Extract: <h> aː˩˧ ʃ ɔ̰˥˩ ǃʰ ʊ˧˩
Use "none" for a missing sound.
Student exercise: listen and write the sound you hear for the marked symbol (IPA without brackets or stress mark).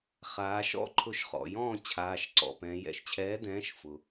χ